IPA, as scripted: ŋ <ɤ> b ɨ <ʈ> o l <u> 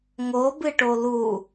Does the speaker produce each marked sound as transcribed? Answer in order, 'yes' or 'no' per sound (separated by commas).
no, yes, yes